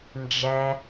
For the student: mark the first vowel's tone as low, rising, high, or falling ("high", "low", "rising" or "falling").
low